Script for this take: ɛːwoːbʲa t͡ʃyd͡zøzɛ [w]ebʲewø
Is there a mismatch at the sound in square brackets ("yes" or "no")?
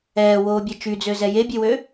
yes